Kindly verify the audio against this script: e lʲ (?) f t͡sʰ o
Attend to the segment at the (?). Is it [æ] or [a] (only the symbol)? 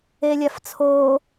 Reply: a